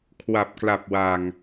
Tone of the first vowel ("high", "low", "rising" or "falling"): low